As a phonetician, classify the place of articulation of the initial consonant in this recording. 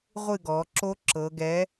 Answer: uvular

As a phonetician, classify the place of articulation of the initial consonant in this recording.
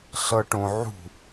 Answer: alveolar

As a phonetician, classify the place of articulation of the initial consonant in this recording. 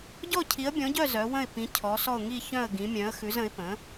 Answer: palatal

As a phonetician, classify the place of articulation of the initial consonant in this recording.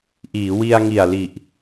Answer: glottal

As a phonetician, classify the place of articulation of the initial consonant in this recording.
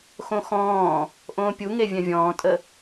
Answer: velar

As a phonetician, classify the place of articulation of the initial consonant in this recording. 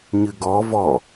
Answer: palatal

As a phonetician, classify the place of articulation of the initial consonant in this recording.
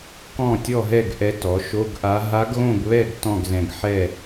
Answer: velar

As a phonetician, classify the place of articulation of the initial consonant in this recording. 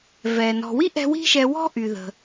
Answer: labial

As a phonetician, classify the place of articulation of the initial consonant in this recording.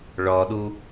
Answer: retroflex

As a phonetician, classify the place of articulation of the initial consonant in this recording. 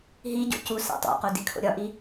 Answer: glottal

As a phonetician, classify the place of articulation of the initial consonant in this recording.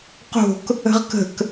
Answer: uvular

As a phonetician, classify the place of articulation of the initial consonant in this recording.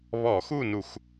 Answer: labial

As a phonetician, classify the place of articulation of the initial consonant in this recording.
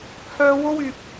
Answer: glottal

